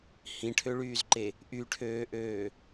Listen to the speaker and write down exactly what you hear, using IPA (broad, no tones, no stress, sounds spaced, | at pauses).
h ĩ ʈʰ ø ɭ yː z ǃ e | ʔ y ʈʰ øː ʔ øː